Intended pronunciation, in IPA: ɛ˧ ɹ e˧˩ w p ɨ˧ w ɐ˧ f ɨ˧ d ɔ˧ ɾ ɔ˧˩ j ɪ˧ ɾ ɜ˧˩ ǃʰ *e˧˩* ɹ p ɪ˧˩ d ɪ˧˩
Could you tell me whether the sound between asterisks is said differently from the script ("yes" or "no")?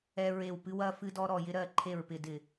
no